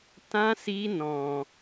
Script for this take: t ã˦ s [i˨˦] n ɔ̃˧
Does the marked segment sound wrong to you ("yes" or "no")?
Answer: yes